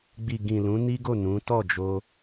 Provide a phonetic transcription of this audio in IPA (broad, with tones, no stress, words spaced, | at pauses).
ɡ͡bi˨ɡĩ˨ lũ˨˦ ni˦ɡo˦˨ nũ˨˦ tɔ˦˨d͡ʒo˧